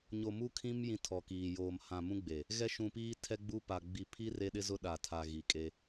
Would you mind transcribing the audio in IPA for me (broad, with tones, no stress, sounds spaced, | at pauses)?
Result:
ɲ o˨ m u˦ kʰ ĩ˦ m j ĩ˦ tʰ ɔ˨ k iː˨ j oː˨ m h ã˨ m ũ˦ ɡ͡b e˨ | ɣ ɛ˦ ʃ ũ˨ p iː˦ tʰ ɛ˦ ɡ͡b u˦ p a˨ ɡ͡b i˨ pʰ i˦ r e˦ ɗ ɪ˦ z ʊ˦ ɗ a˨ tʰ a˨ ɣ i˨ kʼ e˦